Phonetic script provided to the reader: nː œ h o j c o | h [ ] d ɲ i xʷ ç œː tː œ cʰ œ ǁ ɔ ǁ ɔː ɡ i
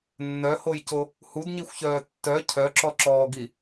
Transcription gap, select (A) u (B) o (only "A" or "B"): A